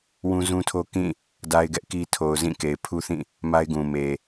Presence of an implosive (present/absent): absent